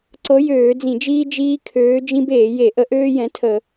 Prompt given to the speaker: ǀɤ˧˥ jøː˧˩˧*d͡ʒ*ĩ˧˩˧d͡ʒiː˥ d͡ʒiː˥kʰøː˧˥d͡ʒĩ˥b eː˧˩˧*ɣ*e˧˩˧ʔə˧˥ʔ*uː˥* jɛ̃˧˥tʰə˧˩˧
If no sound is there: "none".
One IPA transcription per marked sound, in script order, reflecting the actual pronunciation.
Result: d͡z, j, øː˥

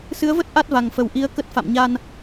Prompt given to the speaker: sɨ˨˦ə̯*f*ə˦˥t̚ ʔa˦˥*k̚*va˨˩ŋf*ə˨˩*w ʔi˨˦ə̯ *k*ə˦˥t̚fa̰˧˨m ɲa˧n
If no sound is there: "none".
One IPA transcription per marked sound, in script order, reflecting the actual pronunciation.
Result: v, t̚, ə˨˩, k

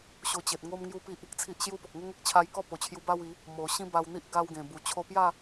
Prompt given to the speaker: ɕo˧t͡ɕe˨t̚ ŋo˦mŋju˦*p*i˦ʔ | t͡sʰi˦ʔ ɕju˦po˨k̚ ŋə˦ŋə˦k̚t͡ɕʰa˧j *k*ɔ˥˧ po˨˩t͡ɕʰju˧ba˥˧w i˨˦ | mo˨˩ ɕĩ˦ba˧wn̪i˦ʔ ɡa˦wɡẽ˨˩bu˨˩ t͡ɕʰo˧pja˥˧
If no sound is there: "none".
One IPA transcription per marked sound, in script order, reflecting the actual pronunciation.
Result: p, k

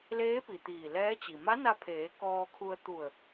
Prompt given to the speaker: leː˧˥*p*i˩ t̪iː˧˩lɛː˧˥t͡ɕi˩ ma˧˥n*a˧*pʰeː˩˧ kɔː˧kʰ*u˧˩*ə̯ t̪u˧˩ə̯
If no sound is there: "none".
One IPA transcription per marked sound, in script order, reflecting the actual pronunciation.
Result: p, a˧, u˧

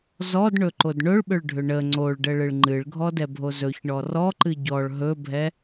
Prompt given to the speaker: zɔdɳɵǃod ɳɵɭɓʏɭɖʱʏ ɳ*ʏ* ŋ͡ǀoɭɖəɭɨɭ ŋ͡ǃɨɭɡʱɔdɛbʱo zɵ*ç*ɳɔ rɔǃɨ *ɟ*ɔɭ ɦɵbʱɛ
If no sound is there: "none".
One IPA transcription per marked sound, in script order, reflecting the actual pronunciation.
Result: ə, ç, ɟ

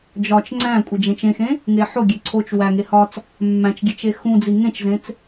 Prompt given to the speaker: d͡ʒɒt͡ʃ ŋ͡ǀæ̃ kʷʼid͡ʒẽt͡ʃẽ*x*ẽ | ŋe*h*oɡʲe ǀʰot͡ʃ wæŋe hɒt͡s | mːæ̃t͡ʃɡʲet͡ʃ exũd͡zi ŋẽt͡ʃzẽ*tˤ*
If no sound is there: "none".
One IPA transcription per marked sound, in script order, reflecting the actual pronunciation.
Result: x, ħ, t͡s

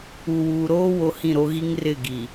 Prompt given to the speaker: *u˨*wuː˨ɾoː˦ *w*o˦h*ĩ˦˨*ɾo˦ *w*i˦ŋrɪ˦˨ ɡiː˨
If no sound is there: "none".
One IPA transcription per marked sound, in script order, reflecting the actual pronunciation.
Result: u˨, w, ĩ˦˨, ɣ

